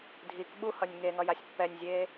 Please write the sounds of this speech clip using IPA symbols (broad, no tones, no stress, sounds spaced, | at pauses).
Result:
dʱ i k ɓ u h ʌ nʲ ŋ e ŋ ʌ j a sʲ pː ɛ nʲ zʲ eː